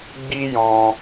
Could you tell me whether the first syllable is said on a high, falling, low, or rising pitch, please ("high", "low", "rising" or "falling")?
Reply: high